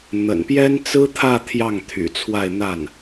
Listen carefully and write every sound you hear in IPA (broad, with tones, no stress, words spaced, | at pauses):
n̪ə̰˨˩npjɛ˥nt͡sɹ̩˥t̪ʰä˥˧ t̪ʰjɑ˥˩ŋt̪ʰy̰˨˩t͡sʰwa˥˧ɪ̯ n̪a˥˩n